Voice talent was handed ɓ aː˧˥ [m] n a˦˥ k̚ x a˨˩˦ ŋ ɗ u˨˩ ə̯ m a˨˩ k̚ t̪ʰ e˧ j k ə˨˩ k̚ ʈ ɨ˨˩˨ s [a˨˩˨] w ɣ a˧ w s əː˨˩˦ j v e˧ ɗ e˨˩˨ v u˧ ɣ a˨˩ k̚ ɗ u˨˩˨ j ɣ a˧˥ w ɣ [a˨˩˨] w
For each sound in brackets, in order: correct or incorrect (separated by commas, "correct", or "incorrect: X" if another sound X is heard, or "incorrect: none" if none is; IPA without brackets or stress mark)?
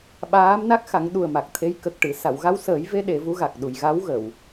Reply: correct, correct, incorrect: ə˨˩˨